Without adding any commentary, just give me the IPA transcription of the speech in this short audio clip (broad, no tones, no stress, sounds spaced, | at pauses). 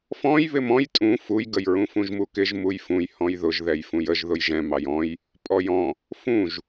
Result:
f ɔ̃ j β ɪ m ɔ̃ j tʼ ũ f u j ɡ ə j ɹ ũ f ũ ʒ m u k ɪ ʒ m u j f ũ j h ɔ̃ j ð ʊ ʒ ð ɛ j f ũ j ə ʒ ð ʊ j ʒ ɛ̃ m ɑ j ɔ̃ j | pʼ ɔ j ɔ̃ | f ũ ʒ